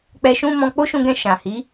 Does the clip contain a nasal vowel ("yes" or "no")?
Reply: yes